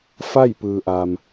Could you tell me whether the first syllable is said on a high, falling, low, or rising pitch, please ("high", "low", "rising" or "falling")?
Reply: falling